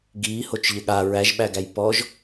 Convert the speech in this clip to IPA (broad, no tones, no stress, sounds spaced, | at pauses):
ɡ iː h o t͡ʃ ʎ ɘ ɠ a ɹ æ ʒ ɓ æ ɡ æ j p ɔ ʒ